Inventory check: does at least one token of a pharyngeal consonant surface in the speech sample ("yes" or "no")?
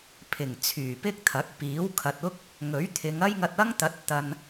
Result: no